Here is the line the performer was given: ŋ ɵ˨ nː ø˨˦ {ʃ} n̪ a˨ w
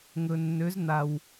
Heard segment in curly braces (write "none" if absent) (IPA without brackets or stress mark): z